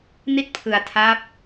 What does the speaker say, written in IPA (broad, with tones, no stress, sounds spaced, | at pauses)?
n i˥˩ t̚ pʰ ɯ˧ a̯ tʰ a˦˥ p̚